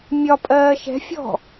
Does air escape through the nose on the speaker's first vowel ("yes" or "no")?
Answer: no